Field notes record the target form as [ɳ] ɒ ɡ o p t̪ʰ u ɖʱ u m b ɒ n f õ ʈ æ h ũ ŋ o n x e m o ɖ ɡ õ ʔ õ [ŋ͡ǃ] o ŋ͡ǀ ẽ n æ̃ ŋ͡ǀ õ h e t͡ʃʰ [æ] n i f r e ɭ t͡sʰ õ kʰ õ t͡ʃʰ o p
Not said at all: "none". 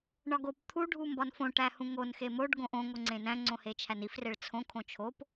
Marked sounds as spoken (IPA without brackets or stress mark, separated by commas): ɳ, ŋ, æ